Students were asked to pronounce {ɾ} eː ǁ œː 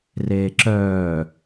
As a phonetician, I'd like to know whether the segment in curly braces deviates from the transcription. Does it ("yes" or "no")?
yes